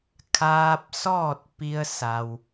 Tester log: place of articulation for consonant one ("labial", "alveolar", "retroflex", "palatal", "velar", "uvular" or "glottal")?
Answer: velar